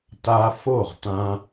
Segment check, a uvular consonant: present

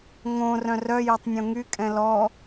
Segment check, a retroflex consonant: absent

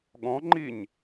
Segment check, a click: present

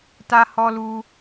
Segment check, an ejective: absent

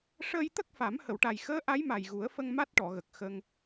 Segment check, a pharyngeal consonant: absent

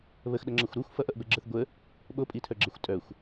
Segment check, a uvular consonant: absent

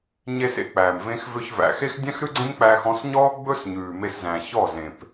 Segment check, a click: present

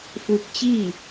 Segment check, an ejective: absent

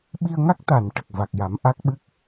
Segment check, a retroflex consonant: present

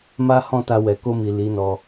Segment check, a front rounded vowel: absent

